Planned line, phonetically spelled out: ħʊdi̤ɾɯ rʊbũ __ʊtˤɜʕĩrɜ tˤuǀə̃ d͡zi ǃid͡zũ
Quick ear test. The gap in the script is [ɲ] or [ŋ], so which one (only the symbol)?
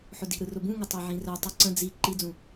ŋ